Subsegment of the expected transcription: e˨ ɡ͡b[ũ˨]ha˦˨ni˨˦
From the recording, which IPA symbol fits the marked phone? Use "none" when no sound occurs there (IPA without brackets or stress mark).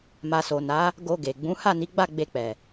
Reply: ũ˨˦